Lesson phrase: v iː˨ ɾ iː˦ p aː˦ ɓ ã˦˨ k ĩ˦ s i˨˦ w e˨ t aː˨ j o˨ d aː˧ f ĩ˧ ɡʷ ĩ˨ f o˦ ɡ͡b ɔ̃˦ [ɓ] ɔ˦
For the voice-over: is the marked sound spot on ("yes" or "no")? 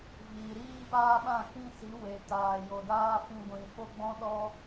no